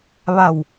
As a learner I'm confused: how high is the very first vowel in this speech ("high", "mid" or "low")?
low